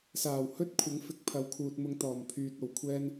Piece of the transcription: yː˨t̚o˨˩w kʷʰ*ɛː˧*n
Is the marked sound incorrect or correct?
correct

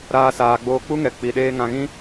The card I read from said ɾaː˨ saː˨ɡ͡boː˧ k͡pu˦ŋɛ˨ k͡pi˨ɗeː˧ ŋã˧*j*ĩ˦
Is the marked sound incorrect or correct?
incorrect: ɣ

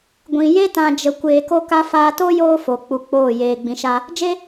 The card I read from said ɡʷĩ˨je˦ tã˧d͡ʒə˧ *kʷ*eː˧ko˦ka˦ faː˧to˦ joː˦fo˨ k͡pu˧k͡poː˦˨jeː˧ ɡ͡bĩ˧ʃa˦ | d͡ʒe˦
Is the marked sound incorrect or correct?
correct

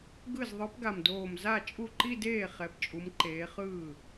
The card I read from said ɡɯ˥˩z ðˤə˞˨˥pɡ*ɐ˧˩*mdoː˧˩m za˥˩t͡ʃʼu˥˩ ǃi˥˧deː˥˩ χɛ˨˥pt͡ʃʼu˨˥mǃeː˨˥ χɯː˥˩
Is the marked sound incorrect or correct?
incorrect: a˧˩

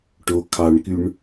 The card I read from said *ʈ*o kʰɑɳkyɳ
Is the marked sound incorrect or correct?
correct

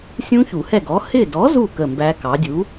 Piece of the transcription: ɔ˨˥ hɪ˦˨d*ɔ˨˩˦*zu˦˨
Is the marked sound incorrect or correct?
incorrect: ɔ˨˥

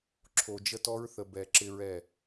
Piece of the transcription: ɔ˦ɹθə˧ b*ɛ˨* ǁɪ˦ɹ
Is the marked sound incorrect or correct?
incorrect: ɛ˧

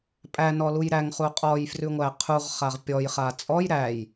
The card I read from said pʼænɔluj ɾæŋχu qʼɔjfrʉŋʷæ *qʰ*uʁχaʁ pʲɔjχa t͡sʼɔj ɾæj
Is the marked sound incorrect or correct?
correct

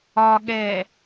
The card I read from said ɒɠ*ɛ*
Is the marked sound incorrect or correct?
correct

